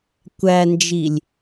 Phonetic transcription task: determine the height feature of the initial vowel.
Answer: low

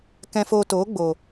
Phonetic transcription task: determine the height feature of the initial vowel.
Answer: mid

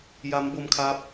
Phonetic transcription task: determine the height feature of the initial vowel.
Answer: low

